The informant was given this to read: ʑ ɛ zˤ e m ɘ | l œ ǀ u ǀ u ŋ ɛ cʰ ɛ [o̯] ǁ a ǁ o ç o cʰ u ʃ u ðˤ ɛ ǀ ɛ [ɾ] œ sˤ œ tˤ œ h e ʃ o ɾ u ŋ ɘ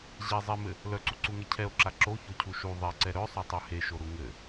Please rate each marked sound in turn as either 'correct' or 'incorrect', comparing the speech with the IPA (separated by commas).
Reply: correct, correct